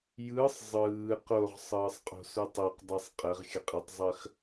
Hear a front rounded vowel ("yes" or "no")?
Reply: no